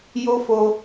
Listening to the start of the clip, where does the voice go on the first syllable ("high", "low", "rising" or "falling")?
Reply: high